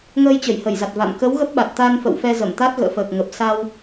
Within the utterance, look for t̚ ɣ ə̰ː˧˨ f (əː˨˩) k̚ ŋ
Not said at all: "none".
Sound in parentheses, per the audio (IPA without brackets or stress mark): əː˨˩